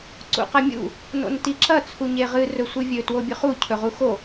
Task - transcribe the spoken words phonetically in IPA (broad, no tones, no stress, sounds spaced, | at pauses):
ǀ ṵ q ɐ mʲ ṵ | n o̰ n t i ǁ ɐ t͡sʰ u ɲ e ʁ ɨ r ɵ sʷ ɨ vʲ ɵ t w o bʲ ʉ χ u cʰ ɵ ʁ u x o